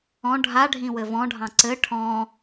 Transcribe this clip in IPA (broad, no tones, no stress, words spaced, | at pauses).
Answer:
ɔ̃ ɖʱaɖʱĩwɘ vɔ̃ɖʱɑ̃ ǀɘ ʈʰɔ̃